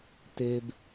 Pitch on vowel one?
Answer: high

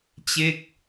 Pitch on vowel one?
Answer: falling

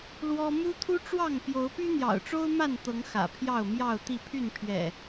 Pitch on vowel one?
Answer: high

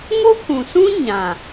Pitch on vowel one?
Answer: high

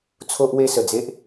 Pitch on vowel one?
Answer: high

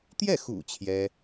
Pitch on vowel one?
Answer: falling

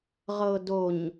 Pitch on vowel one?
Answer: low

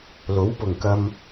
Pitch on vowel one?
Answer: rising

